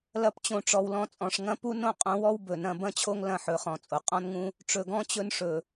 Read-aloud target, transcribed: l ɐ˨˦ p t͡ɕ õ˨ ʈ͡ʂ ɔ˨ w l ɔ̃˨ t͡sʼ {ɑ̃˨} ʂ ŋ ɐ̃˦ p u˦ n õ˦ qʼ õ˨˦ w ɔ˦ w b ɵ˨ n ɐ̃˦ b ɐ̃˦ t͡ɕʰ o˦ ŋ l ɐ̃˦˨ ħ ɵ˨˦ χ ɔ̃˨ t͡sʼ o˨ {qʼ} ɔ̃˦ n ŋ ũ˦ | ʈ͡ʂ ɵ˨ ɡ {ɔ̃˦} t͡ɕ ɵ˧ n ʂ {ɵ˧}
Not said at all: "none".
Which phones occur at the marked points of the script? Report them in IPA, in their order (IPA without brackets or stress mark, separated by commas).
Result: ɔ̃˨, qʼ, ɔ̃˦, ɵ˨